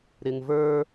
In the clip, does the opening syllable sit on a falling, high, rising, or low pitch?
low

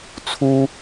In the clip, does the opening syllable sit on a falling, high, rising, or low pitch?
high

